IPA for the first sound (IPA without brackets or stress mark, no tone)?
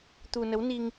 t̪